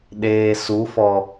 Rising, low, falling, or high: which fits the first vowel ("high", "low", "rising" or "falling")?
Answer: low